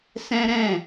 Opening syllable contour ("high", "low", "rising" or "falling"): high